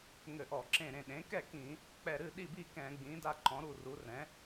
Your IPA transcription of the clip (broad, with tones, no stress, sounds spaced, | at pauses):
ŋ ɘ˧˩˧ ʔ ɔ˧˩˧ ǁ ẽ˧˩ ɾ ẽ˧˩ ɗ ẽ˩˥ k ɛ˥˨ k ĩ˧˩˧ | k͡p ɛ˧˩ ɾ ɨ˥˨ ɗ i˥˨ b i˥˨ k ɛ̃˧˩˧ ɡ͡b ĩ˩˥ d a˥˨ ǃ ɔ̃˩˥ ɾ u˧˩ r u˩˥ r ɛ̃˩˥